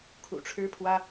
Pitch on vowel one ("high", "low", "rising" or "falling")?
low